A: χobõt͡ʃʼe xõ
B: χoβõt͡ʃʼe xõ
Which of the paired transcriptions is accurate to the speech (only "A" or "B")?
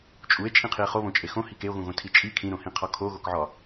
B